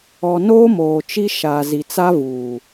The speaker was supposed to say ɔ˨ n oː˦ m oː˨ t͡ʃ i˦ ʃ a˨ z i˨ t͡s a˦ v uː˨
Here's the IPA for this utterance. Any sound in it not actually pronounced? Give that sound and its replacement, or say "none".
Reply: none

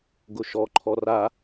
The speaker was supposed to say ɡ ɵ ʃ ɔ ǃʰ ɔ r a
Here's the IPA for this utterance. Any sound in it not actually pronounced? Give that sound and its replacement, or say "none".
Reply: ɵ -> ʊ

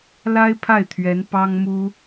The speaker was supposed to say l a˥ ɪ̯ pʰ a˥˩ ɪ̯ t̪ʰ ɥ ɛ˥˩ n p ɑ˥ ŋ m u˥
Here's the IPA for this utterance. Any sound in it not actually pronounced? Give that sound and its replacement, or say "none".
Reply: ɛ˥˩ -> ɛ˧˥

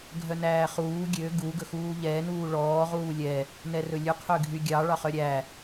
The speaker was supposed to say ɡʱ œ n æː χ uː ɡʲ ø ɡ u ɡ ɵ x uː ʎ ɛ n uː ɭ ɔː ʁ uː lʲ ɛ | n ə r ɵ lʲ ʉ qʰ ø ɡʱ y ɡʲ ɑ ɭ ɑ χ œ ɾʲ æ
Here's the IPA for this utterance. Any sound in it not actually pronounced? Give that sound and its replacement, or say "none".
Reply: ə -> ɛ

